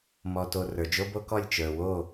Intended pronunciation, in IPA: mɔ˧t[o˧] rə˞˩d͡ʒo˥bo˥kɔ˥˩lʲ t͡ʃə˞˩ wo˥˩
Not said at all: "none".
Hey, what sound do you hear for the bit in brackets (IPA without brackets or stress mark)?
o˧